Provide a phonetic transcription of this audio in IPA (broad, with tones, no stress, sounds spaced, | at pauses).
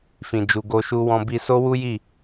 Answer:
f ĩ˨ d͡ʒ u˨ ɡ o˧ ʃ u˧ w ɔ̃˧ b i˧ s o˦ w u˦ j i˦˨